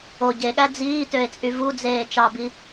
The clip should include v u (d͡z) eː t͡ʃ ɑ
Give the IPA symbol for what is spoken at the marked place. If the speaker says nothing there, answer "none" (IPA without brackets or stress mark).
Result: d͡z